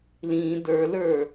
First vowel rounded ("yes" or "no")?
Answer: no